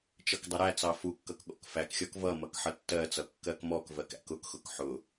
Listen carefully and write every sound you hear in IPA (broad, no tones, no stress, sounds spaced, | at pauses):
t͡ʃ ʌ k dˤ ʌ ɾ æ t͡s ɑ f u kː ʌ k ɠ ɔ̰ k f æ k xʲ ɔ k v ʌ m ʌ k ħ ʌ tː ɜ t͡s ʌ kː ɜ k m ɔ k v ɜ k æ̰ k ʊ k x ʊ k ħ ʊ